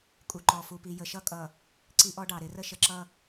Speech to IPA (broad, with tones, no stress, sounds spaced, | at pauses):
kʼ u˨ ǃ ɔ˨ f u˨ p i˨ j ə˨ ʃ ʌ˦ kʼ ʌ˨ | ǀ i˦ ʔ ɔ˦ ɖ ɑ˨ ɾ ɪ˨˦ r ə˦ ʃ ə˨ ǁ ʌ˦˨